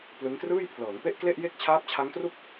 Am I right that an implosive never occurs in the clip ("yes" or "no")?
yes